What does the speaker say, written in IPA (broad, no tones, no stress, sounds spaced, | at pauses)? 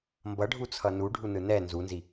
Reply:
m b ʌ ɖʱ u t͡sʰ ʌ n u ɖʱ u n ɯ n ɛ n z u n z i